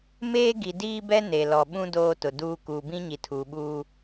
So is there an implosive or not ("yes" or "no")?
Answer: yes